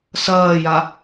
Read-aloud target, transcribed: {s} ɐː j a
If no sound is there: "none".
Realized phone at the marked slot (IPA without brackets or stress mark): s